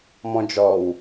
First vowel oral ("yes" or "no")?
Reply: no